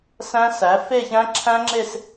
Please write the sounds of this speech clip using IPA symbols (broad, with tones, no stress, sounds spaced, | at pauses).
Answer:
s æ̃˦˥ s æ˩˥ f e˥˧ ç æ̃˦˥ ǁʰ æ̃˦˥ ŋ͡ǁ e˥˧ s